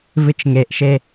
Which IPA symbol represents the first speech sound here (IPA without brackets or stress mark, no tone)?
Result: v